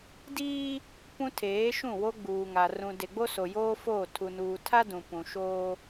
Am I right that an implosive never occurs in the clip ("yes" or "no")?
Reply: yes